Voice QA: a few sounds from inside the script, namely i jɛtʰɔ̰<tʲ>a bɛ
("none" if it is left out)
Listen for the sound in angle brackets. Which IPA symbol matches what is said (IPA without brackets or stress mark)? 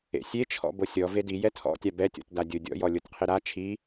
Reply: tʲ